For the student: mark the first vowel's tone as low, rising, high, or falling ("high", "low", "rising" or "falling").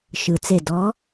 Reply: low